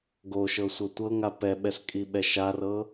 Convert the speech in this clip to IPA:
ɡ o ʃ ɤ sʷ ɤ tʷ ɤ ŋ a p ɛ ɓ ɛ s kʼ i ɓ ɛ ʃ a r ɤ

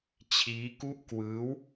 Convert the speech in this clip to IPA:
t͡ɕʰ iː˦˥ k u˥˩ ʔ k w ɯː˦˥ w

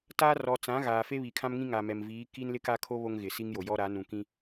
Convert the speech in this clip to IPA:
t aː˦ r ɔ˨ t͡s ã˨˦ ɣ aː˨ f e˦ β i˨ kʰ ã˦ m ŋ ĩ˦ ŋ a˨ m ɛ˨ m v iː˨˦ k i˦ n l ɪ˦ k a˦ kʰ o˦ β o˦ ŋ ɣ ɪ˨ s i˦ ŋ j o˨ j ɔ˦ ɾ a˨˦ n ũ˨ k ĩ˦

